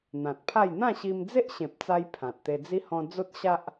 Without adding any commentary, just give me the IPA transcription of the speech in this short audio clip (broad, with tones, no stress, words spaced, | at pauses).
n̪ã˨t̚pʰa˥˧j n̪ã˥˧ ɕi˧md͡ze˦ʔɕẽ˨p̚t͡sa˧j pʰã˨t̚t̪e˧d͡zi˦ hɔ̃˧ d͡zo˦t̚ɕa˦ʔ